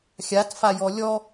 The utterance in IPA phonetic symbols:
xʲ a t f a j ɔ lʲ ɔ

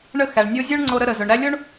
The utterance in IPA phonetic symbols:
ɳ ə˦ x æ˨ ɳ nʲ o˦ zʲ o˥ ɳ ŋ͡ǀ o˦ ɾ ə˦ ɾ ə˨ z ɵ˨ ɳ ɾ æ˦ lʲ o˥ ɳ

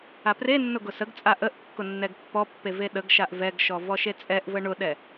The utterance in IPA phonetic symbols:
a p r e nː ʊ ɡ ʊ s ə ɡ t͡sʼ a ʔ ə ʔ kː ʊ nː ɛ ɡ pː ɔ pː e v e ɗ ə ɡ ʃ a ʔ v ɛ ɡ ʃ ɔ v ɔ ʃ e t͡sʼ ɛ ʔ v ə ɳ ʊ ɗ ɛ

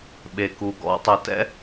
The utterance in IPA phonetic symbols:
ɓ e˩ k u˩ ɡ ɔ̰˧ tˤ u˩ t ɛ̰˥

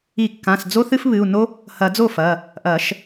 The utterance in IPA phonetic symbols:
i˨˩˦ kː ã˩˧˩ s d͡z o˦ θ ɨ˦ f β ɨ˩˧˩ u̯ n o˦ | h ɐ˨˩˦ d͡z o˥˩ f ɐ˩˧˩ | ʔ ɐ˨˩˦ ʃ

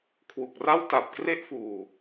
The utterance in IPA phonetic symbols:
kʰ w u˨˩ k̚ r a˥˩ w t a˨˩ p̚ k r e˥˩ ʔ f uː˨˩

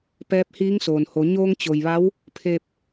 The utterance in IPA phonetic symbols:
p ɛː˧˥ p̚ h iː˧˥ ŋ s oː˩ n h o˩˧ ɲ oː˧ ŋ t͡ɕ o˩ j ʋ a˧˥ w | pʰ e˧ p̚

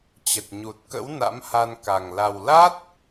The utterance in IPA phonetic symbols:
t͡ɕ ə˨˩ t̚ ɲ u˨˩ t̚ k ə̰˧˥ w n a̰˧˥ m h a˧ n k a˨˩ ŋ l a˨˩ w l a˦˥ t̚

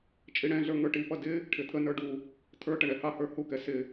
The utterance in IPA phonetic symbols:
t͡ʃʼ i ɽ ɛ̃ ɮ ə˞ ŋ ə˞ ʈ i p ʌ d ɪ | ʈʰ ɪ t̪ʰ ə n ə˞ ɖ u | t̪ʰ ə˞ ʈ ə ɳ ɛ h ɑ h ə˞ h u k ɛ s ɪ

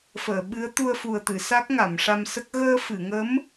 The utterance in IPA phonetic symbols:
f əː˨˩˨ ɓ ɨ˧˥ ə̯ t̪ u˧ ə̯ f u˨˩ ə̯ t̪ ɨ˨˩˨ s a˦˥ k̚ ŋ a˨˩˨ m ʂ a˧ m s ə˦˥ k̚ ɣ əː˧ f ɨ˨˩˨ ŋ ə˧˥ m

